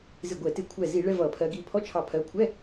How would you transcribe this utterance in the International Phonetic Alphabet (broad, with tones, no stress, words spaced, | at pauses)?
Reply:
zɪ˧˩ɡʷɛ˧˩˧tɪ˧˩˧ kʷʰɛ˧˩zi˧˩˧ ɭɛ˧˥˧vʌ˧˩˧pʰɜ˨˦ ɡi˧˩pʰɔ˧˥˧t͡ʃʰɑ˧˩ pʰɜ˨˦kʷʰɛ˧˥˧